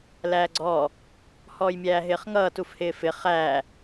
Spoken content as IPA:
læːɡ͡ǀɔː | hɔːjmʲæːɦɪːχŋʌː tufhɪːfɪ χæː

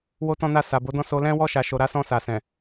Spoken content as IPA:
wo˦tɔ̃˦na˦˨ sa˨bo˨˦dɔ̃˦˨ so˧lɛ̃˦wɔ˦ ʃa˧ʃo˧ ɾa˦sɔ̃˦˨sa˨ sɛ̃˨

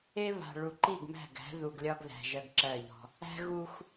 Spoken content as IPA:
e˦βa̤˨ ɭu˨ǃi˦˨ɡmæ̤˦˨ɡæ̤˨˦ ðu˨ɡlʲɒ˦ɡðæ̤˨ ʒɜ˦ɡǁɜ˦˨ʎɔ̤˦ | æ̤˦ɣu˦x

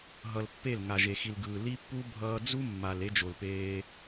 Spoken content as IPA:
ɦʌ˧lpːe˦˨l ŋa˨ʒe˨xi˨l ɡɯː˨ li˦pːu˦ bʱʌː˧d͡zu˦mːa˨l e˦d͡ʒo˨lpeː˧

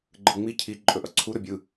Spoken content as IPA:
ɡ͡ǃɯŋ͡mi cʰi ǃʼɵʔʌǀʰu ɾɵbʲɯ

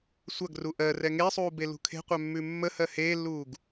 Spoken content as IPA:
sʷɐɡru ʔɜrɛ ŋesˤuːbelṳ kʰe̤qʷœmːʉ mːəhɜ heːlːuːɡ

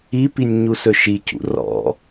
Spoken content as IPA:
ipinʲ ɲusɵʃicṵ rɔ̰

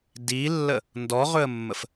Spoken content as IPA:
dilːə | ndɔʁɵə̯mːəf

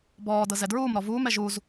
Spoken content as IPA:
bɔːdɤ zɛdɹuːmɾɔ vuːmɛ ʒuz

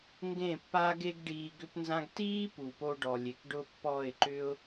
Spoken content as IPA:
ŋɡẽ˦˨pːa˦ɡe˦ɡ ɖiː˧ɡʏ˦pnzã˦ɡ tiː˦ pu˨po˧ɖɔ˨ lʲe˨kɖʊ˦ pːɔ˦˨ɪ̯ǃʏ˦ʊ̯

